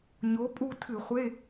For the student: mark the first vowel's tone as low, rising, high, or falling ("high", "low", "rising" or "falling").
rising